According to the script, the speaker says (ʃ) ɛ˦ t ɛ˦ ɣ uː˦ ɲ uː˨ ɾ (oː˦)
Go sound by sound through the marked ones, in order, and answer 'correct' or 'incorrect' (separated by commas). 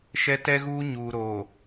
correct, incorrect